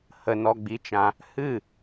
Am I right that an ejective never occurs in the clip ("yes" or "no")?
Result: yes